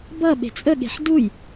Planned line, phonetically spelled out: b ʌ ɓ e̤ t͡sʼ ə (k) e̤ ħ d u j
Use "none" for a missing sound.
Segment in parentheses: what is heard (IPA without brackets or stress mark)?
ɠ